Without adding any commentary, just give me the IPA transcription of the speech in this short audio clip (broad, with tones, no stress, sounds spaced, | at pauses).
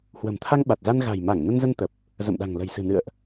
h w ə̤˨˩ m t̪ʰ a˧ ŋ ɓ a˨˩ t̚ z a˧ n ɣ a̤˨˩ j m a˧˩ ŋ n ə˧ n z ə˧ n t̪ ə˨˩ p̚ | z ə̰˧˨ m ɗ a̤˨˩ ŋ l ə̤˨˩ j s ɨ̤˨˩ n ɨ̰˧˨ ə̯ ʔ